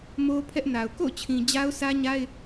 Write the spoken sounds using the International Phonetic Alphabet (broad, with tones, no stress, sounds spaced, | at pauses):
m o˦ pʰ ɛ˦ ʔ n a˨ ʊ̯ k o̰˦˨ ʊ̯ t͡ɕʰ ĩ˨ d͡ʑ a˦ ʊ̯ s ä˦ ɲ a˦ ɪ̯